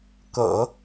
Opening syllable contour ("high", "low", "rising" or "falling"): low